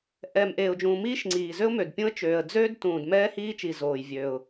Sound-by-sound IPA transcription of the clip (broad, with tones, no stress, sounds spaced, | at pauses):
ʔ ɛː˩ m ʔ eː˩ ʊ̯ d͡ʒ ũː˩ m iː˥ ʃ ŋ͡ǀ iː˩ z ø˥ ʊ̯ m ø˩ d pʲ ũ˥ ə̯ t͡ʃ øː˩ ə̯ d͡z øː˥ d t ũː˩ d m ɛː˥ h iː˥ t͡ʃ i˩ z oː˩ j vʲ øː˩ ʊ̯